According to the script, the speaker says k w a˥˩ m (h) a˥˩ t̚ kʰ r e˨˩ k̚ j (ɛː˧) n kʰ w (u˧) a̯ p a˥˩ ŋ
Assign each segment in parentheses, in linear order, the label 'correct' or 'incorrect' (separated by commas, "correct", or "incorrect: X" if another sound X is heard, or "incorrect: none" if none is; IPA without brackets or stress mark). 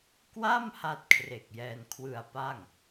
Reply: correct, correct, incorrect: ɯ˧